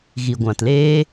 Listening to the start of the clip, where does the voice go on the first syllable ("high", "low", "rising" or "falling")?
low